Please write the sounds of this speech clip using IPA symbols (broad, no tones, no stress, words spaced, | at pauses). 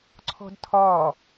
ǀʰɔ̤dtʰɒ